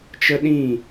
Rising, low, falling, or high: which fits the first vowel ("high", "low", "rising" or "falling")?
high